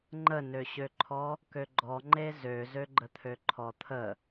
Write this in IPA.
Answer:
ŋ͡ǃ ə n ø ɕ ø ǃʰ ɔ | k ø ɡ͡ǃ ɔ ŋ͡ǃ e z ø z ø ɡ͡ǃ ə t̪ʰ ø ǃʰ ɔ t̪ʰ ə

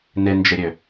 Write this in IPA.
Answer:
n ɪ n d͡ʒ ɪ ɾʲ ø

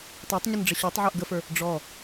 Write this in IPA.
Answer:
tˤ ə˞ tˤ ɲ ə n ɖ͡ʐ ə ɕ o tˤ ʕ ə˞ ʔ ɡ ə f ə˞ | ɖ͡ʐ ɔ

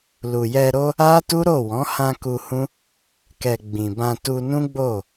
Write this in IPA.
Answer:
l u˨ j ɛ˧ ɾ o˦ | a˦ t u˦ ɾ o˦˨ w ɔ̃˨˦ h ã˧ k u˧ h ũ˦ | k ɛ˨ ɡ͡b ĩ˨ b ã˧ t u˧ n ũ˦ ɡ͡b o˦˨

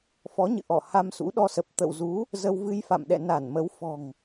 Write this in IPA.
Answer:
f ɔ˨˦ ɲ ɨ̰˧˨ ʔ ɔ˧˩ h a˧ m s ṵ˧˥ ɗ ɔ˧ s ə˨˩ p̚ t̪ ə̰˧˨ w z u˨˦ | z ə˧ w v ɨ˧ j f a̰˧˨ m ɗ ɛ̰˧˨ n a˧˩ n m ə˨˦ w f ɔ̤˨˩ ŋ

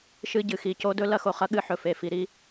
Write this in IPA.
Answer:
ʃ ɨ˧ ɟ ɨ˩ x i˩ c o˧ d ɵ˥ l ɐ˧ x o˩ χ ɐ˧ ɠ ɨ˧ ħ ɵ˩ f e˩ f i˩ ɾ i˧

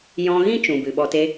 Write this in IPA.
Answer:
j ɔ̃˧ ɣ ĩ˦ t͡ʃ ũ˨ b ɨ˨ ɓ ɔ˧ t e˦

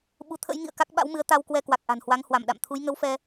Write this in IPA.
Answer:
ɓ u˨˦ t̪ʰ ə̰˧˥ j ŋ ḭ˧˨ ə̯ k a˦˥ k̚ ɓ a̰˧˥ w m ɨ˨˦ ə̯ t̪ a˧ w k w ɛ˧ k w a˨˩ k̚ ʔ a̤˨˩ n h w a˨˦ ŋ h w a˧˩ m ɗ a̰˧˨ m t̪ʰ u˨˦ j ŋ ə˨˦ w f ɛ˧

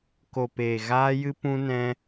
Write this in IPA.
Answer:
k o˨ p eː˨ ɣ aː˧ j ɨ˧ p ũ˧ n ɛ̃˧

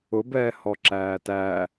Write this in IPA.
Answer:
ʊ b ɛː h ɔ ǁ æː t æ

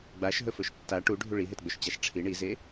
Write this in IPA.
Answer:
ɡ͡b a ʃ ɦ ɵ f ɵ ʃ tː a ʈ u ɖʱ u ɭ i ɦ e t ɡ͡b ɵ ʃ t͡ɕ a ʃ ʈ͡ʂʰ i ɳ i z e

